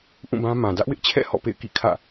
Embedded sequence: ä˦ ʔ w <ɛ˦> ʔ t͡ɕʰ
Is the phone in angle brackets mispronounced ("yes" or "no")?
yes